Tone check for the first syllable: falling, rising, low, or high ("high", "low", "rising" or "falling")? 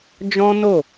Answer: high